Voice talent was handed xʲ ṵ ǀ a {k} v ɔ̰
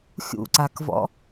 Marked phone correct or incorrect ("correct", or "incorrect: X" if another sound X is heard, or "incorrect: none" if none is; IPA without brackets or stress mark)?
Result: correct